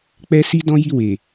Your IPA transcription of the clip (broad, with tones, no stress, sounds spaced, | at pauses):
k͡p ɛ˦ s i˦ d ɔ̃˦ j i˦˨ w e˨